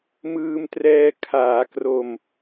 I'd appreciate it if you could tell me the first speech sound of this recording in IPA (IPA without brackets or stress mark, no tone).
m